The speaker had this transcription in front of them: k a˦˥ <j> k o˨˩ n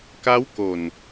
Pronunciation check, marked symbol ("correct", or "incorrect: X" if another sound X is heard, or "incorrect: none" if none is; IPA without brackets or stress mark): incorrect: w